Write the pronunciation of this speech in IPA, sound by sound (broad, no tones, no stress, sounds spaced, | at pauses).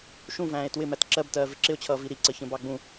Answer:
ʃ ũ v æ̃ː e̯ t w ɪ m æ t ǁ ɜ b t ɜː v ɪ ǁ ɪ o̯ t͡ɕʰ ʌː v i ɾ i ǀ ə ç ə̃ b ɑ ɡ͡b ũ